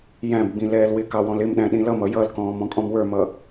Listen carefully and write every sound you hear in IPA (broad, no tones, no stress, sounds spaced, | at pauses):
j æ̃ b ɡ͡b ĩ l ɛː l w ɪ k ɑ w ɔ̃ l ɪ m ɗ æ̃ ɗ ĩ l ʌ m ʌ j ʌ l k ɔ̃ː m ɔ̃ kʼ ɔ̃ m w ə˞ m ʌ